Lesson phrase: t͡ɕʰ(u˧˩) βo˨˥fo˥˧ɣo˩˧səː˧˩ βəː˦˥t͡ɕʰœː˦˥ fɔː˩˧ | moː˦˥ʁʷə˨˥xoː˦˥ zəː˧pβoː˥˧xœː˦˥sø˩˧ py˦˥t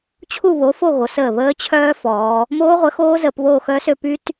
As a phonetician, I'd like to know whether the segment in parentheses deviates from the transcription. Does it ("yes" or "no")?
yes